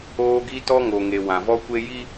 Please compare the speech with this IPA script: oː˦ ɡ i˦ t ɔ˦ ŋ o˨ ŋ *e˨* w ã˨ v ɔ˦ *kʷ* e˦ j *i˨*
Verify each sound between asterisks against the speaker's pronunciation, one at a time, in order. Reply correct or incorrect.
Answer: correct, correct, incorrect: i˦

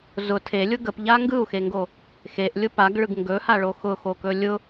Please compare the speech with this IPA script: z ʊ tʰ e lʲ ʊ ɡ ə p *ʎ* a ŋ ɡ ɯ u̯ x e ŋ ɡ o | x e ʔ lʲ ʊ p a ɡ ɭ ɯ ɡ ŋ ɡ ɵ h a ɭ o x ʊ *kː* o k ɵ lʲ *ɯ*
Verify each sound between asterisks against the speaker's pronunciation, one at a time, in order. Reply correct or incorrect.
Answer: correct, incorrect: x, incorrect: ʊ

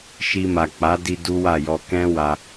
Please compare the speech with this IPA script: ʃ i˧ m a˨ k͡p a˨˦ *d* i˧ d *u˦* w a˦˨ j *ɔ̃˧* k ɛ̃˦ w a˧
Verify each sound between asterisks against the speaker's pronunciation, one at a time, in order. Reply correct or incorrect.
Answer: correct, correct, incorrect: ɔ˧

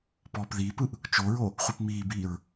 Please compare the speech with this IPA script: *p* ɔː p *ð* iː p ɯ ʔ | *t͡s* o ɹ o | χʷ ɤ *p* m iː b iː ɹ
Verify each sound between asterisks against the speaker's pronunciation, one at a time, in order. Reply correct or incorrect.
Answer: correct, correct, incorrect: t͡ʃ, correct

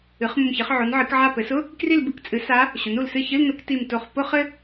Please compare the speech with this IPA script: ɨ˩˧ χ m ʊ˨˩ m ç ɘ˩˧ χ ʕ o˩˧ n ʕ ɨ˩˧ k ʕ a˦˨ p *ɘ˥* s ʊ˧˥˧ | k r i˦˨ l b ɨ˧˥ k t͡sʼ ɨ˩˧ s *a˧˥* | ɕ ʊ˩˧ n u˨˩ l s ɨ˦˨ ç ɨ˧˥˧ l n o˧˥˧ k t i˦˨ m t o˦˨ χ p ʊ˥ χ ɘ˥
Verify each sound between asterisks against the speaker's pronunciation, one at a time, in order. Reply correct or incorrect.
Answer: incorrect: ɘ˩˧, correct

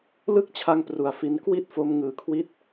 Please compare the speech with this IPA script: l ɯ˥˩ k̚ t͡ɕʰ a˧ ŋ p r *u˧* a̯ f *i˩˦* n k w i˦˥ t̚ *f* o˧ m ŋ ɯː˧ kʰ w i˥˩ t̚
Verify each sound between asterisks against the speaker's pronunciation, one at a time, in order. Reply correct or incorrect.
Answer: correct, incorrect: i˦˥, correct

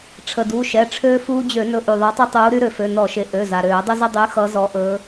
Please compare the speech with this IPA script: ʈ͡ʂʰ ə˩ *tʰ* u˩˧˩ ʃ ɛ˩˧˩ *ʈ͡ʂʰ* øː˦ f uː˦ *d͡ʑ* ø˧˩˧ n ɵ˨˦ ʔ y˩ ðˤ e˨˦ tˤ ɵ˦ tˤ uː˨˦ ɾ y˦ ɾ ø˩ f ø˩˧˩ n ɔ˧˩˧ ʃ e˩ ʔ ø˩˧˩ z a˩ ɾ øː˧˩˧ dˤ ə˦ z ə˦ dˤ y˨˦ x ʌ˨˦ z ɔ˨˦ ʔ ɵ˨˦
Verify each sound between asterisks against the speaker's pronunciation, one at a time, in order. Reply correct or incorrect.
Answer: incorrect: d, correct, correct

